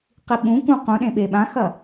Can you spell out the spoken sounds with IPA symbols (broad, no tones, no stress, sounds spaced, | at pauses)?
q i ɓ ũ k ũ q ũ ɗ ẽ ɓ e ɓ ã x ɐ